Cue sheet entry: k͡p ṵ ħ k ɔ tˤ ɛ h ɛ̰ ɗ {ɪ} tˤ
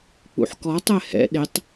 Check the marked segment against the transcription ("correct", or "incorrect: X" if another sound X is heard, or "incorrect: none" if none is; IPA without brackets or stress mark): correct